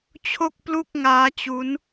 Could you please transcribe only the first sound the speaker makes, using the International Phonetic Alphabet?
t͡ɕʰ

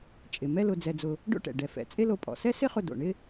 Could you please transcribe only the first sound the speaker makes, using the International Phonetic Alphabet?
t͡ʃʼ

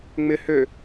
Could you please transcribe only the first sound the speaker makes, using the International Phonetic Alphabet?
ŋ͡m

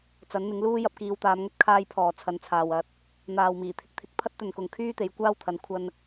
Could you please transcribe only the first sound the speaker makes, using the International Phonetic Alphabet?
t͡s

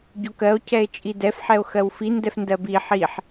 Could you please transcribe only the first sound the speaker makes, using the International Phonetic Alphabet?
ɟ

